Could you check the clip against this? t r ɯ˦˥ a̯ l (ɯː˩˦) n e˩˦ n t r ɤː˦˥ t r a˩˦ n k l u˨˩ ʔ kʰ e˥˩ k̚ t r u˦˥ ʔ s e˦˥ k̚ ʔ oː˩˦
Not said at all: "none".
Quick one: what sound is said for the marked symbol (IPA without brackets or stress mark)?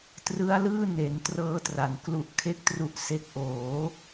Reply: ɯː˥˩